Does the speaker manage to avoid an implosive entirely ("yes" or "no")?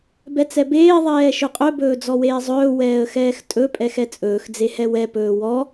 yes